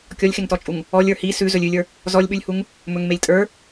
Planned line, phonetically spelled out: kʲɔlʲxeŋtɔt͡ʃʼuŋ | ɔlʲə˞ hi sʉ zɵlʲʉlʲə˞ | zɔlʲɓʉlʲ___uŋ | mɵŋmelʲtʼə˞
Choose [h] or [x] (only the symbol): h